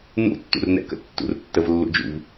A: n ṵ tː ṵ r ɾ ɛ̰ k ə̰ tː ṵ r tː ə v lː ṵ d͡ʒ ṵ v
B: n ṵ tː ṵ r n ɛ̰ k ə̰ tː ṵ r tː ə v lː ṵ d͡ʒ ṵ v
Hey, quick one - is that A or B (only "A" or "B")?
B